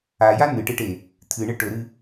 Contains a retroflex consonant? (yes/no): yes